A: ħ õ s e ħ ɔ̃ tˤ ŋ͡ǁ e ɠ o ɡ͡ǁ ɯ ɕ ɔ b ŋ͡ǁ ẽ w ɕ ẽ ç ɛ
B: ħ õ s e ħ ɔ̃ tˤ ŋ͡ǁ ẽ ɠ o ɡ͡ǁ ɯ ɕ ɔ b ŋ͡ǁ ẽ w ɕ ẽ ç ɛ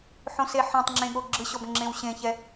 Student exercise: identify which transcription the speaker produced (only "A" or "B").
B